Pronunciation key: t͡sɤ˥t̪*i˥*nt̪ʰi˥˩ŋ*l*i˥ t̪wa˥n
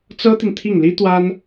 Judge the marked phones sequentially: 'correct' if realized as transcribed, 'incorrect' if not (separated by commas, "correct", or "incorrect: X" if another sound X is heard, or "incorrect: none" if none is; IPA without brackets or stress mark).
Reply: incorrect: i˨, correct